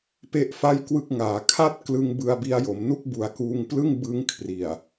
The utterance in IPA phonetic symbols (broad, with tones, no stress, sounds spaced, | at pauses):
p e˥˩ ʔ f a˥˩ j k w ɯ˥˩ k̚ ŋ aː˩˦ kʰ a˥˩ t̚ k l ɯ˧ ŋ b ɯ˧ a̯ b i˧ a̯ j o˩˦ m n u˥˩ k̚ b u˨˩ a̯ k uː˧ ŋ p l ɯ˥˩ ŋ b ɯ˦˥ ŋ kʰ r i˨˩ a̯